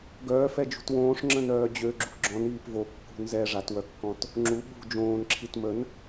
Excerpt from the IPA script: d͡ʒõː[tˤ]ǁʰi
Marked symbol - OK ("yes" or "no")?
no